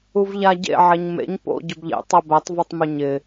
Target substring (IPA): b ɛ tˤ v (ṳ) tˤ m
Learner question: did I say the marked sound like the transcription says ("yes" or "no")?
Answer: no